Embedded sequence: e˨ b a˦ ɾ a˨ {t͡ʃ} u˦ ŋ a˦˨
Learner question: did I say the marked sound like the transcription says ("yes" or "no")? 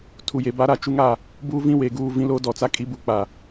yes